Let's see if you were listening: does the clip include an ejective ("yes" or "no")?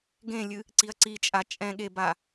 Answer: yes